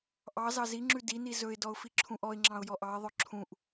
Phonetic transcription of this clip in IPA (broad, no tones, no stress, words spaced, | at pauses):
ʔɑ zɑziŋ͡ǁʉ dini zɵɪ̯dɔʊ̯ fiǁʰũʔɔɪ̯ŋ͡ǁɑ̃ʊ̯ jɔʔɑɪ̯ðˤœ ǁʰũʔ